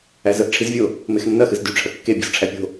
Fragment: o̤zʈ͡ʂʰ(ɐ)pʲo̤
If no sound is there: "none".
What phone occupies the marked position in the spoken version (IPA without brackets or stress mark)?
æ